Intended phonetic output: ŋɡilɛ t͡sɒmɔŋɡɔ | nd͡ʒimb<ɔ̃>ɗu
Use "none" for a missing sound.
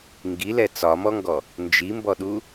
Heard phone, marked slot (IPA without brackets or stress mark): ɔ